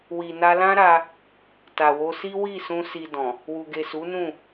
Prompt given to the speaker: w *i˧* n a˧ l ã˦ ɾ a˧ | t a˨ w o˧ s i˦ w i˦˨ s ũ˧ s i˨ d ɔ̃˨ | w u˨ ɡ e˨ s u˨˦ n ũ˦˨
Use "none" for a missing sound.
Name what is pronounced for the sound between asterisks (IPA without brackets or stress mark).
i˨